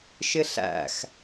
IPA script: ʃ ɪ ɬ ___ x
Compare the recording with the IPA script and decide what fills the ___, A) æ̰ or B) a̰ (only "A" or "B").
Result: A